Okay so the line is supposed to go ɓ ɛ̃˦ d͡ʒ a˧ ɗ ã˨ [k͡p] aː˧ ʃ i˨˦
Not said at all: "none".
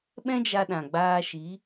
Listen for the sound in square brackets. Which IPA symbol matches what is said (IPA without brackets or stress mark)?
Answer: ɡ͡b